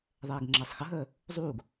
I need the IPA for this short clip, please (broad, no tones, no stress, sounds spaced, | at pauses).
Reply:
ðˤ ɛː ɡ ŋ͡ǁ əː sˤ x ə ɦ əː | zˤ uː ɡ